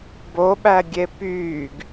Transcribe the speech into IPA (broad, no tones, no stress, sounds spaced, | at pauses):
b o ɓ æ ɡʲ e p yː ɡ